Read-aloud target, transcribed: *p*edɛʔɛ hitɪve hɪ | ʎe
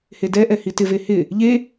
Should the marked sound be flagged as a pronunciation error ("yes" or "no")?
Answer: yes